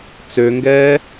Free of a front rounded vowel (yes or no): no